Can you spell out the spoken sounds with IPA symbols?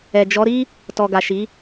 ɛ˨ d͡ʒ ɔ˨˦ ɾ i˦ | t ɔ˨ ɡ a˨ ʃ i˨˦

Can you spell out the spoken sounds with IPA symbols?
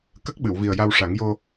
k ə˦˥ k̚ ɓ ɨ˨˩˨ w v i˨˩ ə̯ j a˧ w ʂ a˨˩˦ ŋ j o˧

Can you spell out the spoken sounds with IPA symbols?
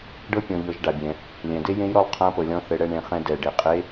ɖ ɤ˥ pʲ ɔ̃˩˧ ʎ ɤ˩˧ ʒ ɖ a˩ bʲ ɛ̃˩ | lʲ ɛ̃˩ d e˥ j ẽ˧˥ j ɾ ɔ˧ lˠ qʰ ã˧˥ p ɤ˩ lʲ ɔ̃˧ θ ɘ˩˧ ɽ ɛ˧ ɳ ẽ˩˧ χ ɛ̃˧ d ɛ˩ ɖ e˩ qʼ e˧˥

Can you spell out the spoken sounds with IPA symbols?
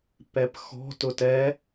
p ɛ p x ɔ̤ t ʊ t ɛ

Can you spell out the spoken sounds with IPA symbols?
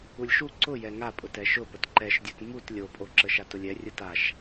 u lʲ ʃ u ǀ ʊ j ɛ ŋ a pʼ ʊ t ɛ ʃ ʊ p ə t ǃ ɛ ʃ dʲ o t m u t lʲ o pʼ o ǁ ə ʃ a t ʊ lʲ ɛ rʲ ʊ t a ʃ

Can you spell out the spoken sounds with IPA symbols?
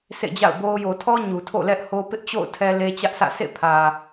s ḛ˦˨ d͡ʑ a̰˦˨ ʊ̯ b o˦ ʊ̯ j o˨ tʰ ɔ˦ ɲ u˨ tʰ o̰˦˨ l ɛ˦ ʔ h o˦ p ɪ˦ ʔ t͡ɕ o̰˦˨ ʊ̯ tʰ ɛ˦ l e˦ t͡ɕ ä˦ ʔ s ä̰˦˨ sʰ ḛ˦˨ pʰ ä˨

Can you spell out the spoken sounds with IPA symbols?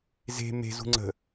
z e̤ m e̤ z ṳ ŋ͡ǀ ə̤

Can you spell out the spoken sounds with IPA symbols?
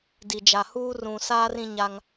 d i˨ d͡ʒ a˨ h uː˦ r ũ˨ s aː˦ r ĩ˦ ɲ a˦ ŋ

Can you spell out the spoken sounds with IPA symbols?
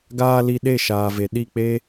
ɡ aː˧ l i˧ ɗ e˦˨ ʃ aː˨ v e˨ ɗ i˦˨ k͡p e˦

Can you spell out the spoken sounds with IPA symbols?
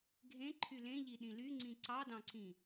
ɡʱ ẽ ǃʰ y l ẽ ʎ i ɗ ĩ l y ŋ͡ǀ ĩ ǀ ɑ d ɑ̃ ǀ ĩ

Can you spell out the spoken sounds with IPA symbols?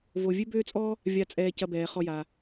v o˨ vʲ ø˦ b øː˦ t͡sʼ ɔ˦ | vʲ a˨ t͡sʼ ɛː˨ c ɐ˨ b ɛː˩ χ ɔ˨ j a˩

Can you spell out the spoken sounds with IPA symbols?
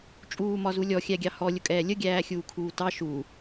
t͡ʃʼ uː m ɒ z u lʲ ɔ xʲ æ ɡʲ ɑ h ɔ lʲ ʊ kʼ ɛː lʲ ə ɡʲ æː xʲ uː kʰ uː t ɑ ʃ u

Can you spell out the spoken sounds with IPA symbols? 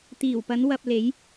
t̪ iː˨˩ w p ɐ˨˧ n w ɐ˨ p̚ l e˨˧ j

